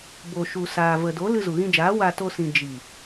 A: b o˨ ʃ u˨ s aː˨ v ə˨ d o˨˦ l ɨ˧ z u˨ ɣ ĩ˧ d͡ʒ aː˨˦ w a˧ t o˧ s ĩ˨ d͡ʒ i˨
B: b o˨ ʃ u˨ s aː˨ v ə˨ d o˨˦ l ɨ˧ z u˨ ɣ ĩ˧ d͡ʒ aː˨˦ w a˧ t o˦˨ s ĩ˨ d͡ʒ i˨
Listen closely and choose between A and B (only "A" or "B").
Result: A